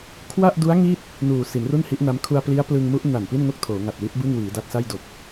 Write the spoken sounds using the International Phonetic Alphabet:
kʰwa˥˩ʔdu˦˥a̯ ŋi˥˩t̚ | nuː˨˩ si˩˦nru˥˩nhi˦˥ʔna˦˥m kʰu˧a̯pli˦˥a̯plɯ˧ŋmu˦˥ʔ na˨˩npi˥˩nŋo˥˩k̚ tʰoː˩˦ŋa˨˩t̚wi˦˥t̚ bɯ˥˩ŋwiː˩˦da˦˥t̚sa˥˩j do˨˩k̚

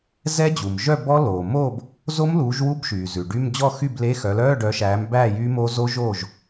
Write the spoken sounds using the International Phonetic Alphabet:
zɛ˦˥d͡ʑu˩mʒœ˥˨bɔ˦˥ loː˩moː˥˨b | zo˦˥mluː˨˦ʒwu˧˥˧bʃyː˩ zʉ˩ɖy˧˥˧m d͡ʑɔ˥˨xy˥˨ble˧˥˧xœ˨˦ lœː˧˥˧ɖœ˨˦ʃæː˨˦m bæː˥˨jyː˦˥mo˦˥ zo˦˥ ʒoː˥˨ʒ

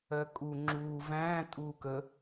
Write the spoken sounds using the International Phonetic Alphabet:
ɜkʼu ŋ͡ǁuː væ̃ː tʼuːkə

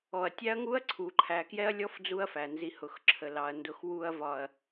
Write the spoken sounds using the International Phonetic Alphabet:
ɔ˨ɐ̯tʲæ˦ɐ̯ŋu˦ɐ̯ ǀʰu˨ ǃʰæ˨kjɛ˦ɐ̯lʲɔ˦f d͡zu˦ɐ̯fæ˨ nzi˨hʊ˨xǁʰə˨ lɑ˨ɐ̯ndʊ˨x wu˨ɐ̯ vɒ˨ɐ̯

